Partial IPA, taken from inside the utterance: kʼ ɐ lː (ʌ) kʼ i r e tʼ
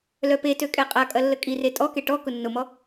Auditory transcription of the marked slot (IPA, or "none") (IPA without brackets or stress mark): ə